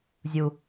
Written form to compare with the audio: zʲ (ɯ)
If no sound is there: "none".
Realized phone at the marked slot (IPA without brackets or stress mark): u